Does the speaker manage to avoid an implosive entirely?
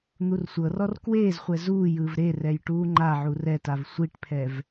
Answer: yes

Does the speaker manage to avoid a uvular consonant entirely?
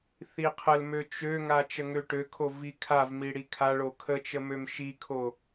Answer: no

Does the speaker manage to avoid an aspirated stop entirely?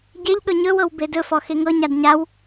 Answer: yes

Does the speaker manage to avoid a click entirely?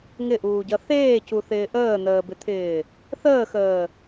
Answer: yes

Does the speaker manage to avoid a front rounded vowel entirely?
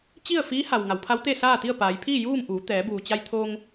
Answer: yes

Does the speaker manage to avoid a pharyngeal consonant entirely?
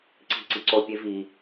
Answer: yes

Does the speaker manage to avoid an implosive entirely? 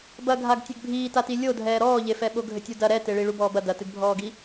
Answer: no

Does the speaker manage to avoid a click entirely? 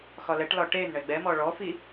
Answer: yes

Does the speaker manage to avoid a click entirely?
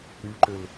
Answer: no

